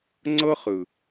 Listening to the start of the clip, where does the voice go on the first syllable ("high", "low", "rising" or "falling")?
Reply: high